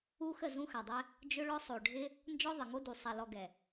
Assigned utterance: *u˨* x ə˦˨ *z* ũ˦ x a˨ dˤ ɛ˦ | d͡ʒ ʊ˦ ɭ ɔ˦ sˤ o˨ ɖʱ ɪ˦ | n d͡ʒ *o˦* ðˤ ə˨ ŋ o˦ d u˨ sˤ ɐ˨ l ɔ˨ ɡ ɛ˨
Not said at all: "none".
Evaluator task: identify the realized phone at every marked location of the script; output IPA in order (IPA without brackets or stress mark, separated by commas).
u˦, z, ɔ˦